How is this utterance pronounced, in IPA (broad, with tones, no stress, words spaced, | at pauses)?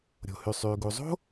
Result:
ɾʲo̤˩hy˩sˤyː˩ ɡu˩zˤo̤˥